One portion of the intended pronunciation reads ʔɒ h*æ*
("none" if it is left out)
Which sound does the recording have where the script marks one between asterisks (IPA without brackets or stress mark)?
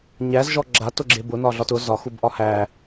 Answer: æ